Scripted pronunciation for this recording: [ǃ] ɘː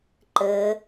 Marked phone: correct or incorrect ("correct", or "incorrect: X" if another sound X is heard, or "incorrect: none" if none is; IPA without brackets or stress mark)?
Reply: correct